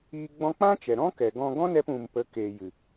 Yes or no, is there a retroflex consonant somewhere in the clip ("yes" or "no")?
no